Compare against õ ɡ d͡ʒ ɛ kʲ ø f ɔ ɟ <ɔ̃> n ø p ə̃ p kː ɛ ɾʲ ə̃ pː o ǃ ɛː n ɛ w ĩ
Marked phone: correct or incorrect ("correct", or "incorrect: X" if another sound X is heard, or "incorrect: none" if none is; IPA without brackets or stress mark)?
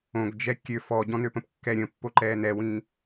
correct